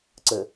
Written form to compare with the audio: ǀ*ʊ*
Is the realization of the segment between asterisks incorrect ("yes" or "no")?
yes